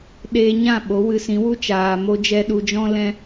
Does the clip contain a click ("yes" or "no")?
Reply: no